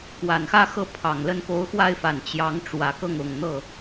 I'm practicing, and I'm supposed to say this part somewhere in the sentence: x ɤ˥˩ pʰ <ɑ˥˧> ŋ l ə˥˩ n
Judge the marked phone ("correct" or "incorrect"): incorrect